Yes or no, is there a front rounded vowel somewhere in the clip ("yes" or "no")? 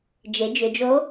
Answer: yes